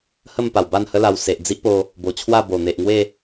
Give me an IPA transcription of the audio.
hə˥˧m pa˨˩wba˥˧nhə˦la˧w se˨ʔd͡zi˦ʔpo˧ | bo˨˩t͡ɕʰwa˥˧bo˨˩n̪e˨ʔ ŋwe˥˧

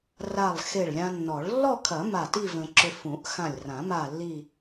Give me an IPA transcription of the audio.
ra˧˩lˠxe˧˩ɭlʲã˧nːɔ˨˩˦ɭ lːɔ˥˧kʰɐ˨˩˦ ma˧˩ti˥˧ və̃˧ǁʏ˧ fũ˨˩˦ʔxã˧˩lʲrã˨˩˦ ma˥˧lːi˥˧

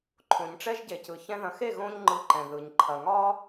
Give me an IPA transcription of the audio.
ǃʰõ˨ɲʈ͡ʂɛ˦ʒɟe˨cɯ˨ çɛ̃˧ðɐ̃˨xe˦˨ ɣõ˦ɲŋ͡ǃɯ˧ǃɛ̃˨ ðɯ˨ɲǃʰɐ˨ŋɒ˦

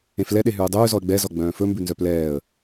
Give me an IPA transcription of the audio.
ẽflɛ ɗeɦʉːdˤʉːzɔə̯ ɡ͡bɛzɔ ɡ͡bœ̃ːfɵmbʉ nzœplɛːə̯

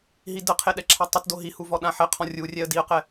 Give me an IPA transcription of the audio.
ɦidəqʰe ɗɛǁʰatˤətdo ɦihu vɔɗãħɛqʰɔ̃ rʲurʲɛə̯ diə̯qɛ

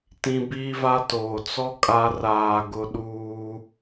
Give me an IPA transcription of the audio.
tĩ˦ biː˦va˦toː˨ t͡sɔ˦ kʼa˦ raː˨ ɡʊ˦ɗuː˦

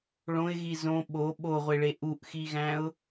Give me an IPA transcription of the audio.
ɭõɪ̯ɣi zõ ɓo ɓoʁʷeɭe ʔuʔxiɣæ̃ʊ̯

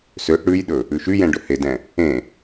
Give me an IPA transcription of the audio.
søʔ ɽʉjɗɵ | ʉʃyjɛ̃ ɖɵhedɛ̃ | ẽ

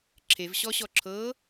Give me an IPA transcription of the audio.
ǁʰevɕɔɕɔ ǁʰɤ

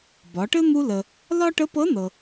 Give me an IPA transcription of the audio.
bɒ˩˧ʈɘ˥ n̪u˧lə˩ | lɒ˥ ʈə˧˥pɤ˧˥nɤ˩

